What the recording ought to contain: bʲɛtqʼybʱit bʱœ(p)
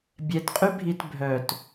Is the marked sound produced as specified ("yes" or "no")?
no